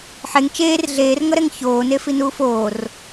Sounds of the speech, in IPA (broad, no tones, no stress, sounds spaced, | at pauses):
ħ e ŋ t͡ʃ eː r ɮ eː r ŋ ʌ ɾ ɛ ŋ ç oː n e f i n uː f oː r